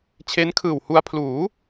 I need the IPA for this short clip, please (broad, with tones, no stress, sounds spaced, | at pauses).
t͡ɕʰ e˦˥ n kʰ ɯː˨˩ w h u˧ a̯ pʰ l uː˩˦